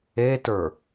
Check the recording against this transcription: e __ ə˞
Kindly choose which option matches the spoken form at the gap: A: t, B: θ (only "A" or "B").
A